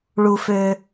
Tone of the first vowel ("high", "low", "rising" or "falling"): high